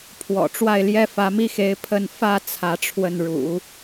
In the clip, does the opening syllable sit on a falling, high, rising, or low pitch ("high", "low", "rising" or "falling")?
low